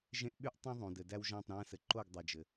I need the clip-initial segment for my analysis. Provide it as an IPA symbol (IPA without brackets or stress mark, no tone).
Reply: ʒ